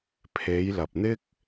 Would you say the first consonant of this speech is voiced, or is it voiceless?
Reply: voiceless